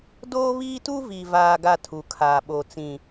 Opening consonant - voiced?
yes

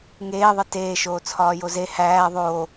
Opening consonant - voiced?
yes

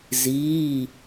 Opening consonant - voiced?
yes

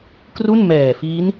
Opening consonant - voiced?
no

